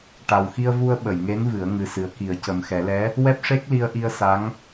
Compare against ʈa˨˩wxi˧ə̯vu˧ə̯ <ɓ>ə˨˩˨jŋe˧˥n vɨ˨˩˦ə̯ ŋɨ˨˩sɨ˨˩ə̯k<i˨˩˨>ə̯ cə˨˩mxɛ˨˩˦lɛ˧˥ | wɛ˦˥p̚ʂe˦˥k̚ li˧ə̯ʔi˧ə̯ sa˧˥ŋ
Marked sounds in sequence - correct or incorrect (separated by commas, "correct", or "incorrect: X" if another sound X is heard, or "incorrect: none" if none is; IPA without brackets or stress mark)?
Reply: correct, incorrect: i˨˩˦